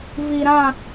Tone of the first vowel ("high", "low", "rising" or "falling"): low